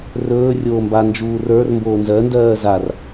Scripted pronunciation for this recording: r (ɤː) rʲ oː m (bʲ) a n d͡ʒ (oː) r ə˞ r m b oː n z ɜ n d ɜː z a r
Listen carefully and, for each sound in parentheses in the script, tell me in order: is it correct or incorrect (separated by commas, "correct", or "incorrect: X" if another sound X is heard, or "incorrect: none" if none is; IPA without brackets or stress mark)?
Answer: incorrect: ɵː, incorrect: b, incorrect: uː